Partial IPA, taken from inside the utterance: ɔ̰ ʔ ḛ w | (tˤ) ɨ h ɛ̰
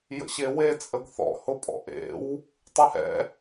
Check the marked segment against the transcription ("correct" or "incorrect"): correct